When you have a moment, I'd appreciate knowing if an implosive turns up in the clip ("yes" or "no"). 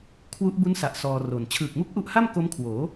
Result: no